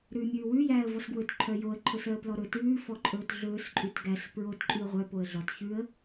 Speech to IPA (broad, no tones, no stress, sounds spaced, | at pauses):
ɾ ʉː mʲ ʉː w ʉ j æː ə̯ v ɔ s ɡ w ɵ t ǃʰ œ j o ə̯ ǃʰ ɵ s œ ə̯ p l ɔ ɾ ɵ t ʉː f ɔ ǃʼ ɵː t ɮ ɵː s ǃʼ ʉ t ɡ æ s p ɹ o t ǃʼ ʉ ə̯ ʁʷ œ p o ə̯ ɮ ɔ t ç ʉ ə̯